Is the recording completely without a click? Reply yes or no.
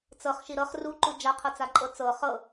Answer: no